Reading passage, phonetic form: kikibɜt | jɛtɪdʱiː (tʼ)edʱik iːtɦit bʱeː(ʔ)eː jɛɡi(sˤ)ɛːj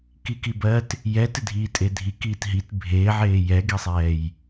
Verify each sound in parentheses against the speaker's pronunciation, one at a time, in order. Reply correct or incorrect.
correct, incorrect, correct

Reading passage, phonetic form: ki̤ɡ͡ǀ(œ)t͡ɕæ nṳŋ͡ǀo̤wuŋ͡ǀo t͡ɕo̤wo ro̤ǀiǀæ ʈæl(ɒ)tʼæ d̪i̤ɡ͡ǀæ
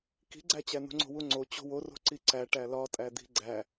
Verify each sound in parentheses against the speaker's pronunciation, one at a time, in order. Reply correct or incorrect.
incorrect, correct

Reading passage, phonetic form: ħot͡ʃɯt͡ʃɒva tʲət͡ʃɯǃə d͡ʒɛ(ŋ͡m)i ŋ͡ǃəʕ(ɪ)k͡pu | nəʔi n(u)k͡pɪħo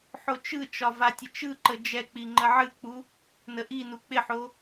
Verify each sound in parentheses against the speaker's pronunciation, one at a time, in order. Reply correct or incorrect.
incorrect, incorrect, correct

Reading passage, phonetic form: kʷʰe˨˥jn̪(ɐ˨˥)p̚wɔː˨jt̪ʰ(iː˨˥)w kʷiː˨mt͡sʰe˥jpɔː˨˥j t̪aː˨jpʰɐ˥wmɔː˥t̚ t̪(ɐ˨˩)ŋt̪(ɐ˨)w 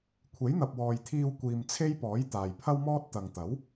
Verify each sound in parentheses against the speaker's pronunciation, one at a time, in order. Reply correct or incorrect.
incorrect, incorrect, incorrect, incorrect

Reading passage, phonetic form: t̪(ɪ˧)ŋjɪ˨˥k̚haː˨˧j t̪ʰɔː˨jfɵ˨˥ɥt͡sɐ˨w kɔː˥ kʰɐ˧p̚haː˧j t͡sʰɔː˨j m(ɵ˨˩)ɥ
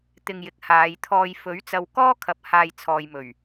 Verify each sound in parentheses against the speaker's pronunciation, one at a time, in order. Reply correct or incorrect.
correct, correct

